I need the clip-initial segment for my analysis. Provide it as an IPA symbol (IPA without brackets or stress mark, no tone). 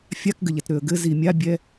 fʲ